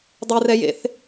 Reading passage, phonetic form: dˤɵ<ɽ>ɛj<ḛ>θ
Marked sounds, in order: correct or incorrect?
incorrect: r, correct

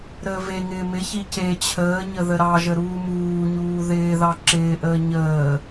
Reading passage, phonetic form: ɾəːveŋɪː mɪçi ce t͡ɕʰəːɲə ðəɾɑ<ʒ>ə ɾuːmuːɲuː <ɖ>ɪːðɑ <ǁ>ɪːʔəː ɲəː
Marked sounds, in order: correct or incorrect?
correct, incorrect: ð, correct

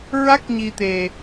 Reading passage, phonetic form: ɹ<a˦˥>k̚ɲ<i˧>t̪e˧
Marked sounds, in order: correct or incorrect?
correct, correct

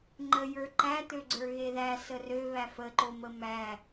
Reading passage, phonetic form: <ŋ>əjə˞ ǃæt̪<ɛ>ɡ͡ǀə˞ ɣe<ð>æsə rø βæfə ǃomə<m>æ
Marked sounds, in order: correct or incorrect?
incorrect: ŋ͡ǃ, incorrect: ø, correct, correct

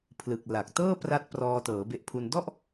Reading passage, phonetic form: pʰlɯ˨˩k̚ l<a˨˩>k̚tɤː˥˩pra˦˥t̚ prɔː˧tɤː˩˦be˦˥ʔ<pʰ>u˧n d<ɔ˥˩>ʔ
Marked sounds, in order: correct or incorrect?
correct, correct, correct

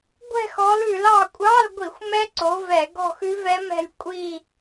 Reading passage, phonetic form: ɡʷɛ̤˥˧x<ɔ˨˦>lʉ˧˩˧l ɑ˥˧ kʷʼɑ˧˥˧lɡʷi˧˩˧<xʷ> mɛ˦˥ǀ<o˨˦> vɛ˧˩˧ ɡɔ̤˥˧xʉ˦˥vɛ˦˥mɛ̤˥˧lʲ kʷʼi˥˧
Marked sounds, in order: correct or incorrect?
correct, correct, correct

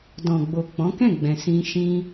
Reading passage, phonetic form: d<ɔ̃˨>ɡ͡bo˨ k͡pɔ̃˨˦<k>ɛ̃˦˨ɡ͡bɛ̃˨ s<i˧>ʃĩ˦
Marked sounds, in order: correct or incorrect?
correct, correct, incorrect: ĩ˧

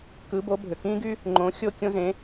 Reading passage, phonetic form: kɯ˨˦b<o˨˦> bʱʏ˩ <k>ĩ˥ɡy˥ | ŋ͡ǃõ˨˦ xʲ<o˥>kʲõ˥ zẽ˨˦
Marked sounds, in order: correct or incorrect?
correct, correct, correct

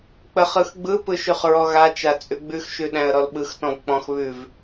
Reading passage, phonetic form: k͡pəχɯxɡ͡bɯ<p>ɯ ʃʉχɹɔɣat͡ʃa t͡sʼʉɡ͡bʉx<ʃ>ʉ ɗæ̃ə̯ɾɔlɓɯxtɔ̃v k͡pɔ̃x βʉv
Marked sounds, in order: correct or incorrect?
correct, correct

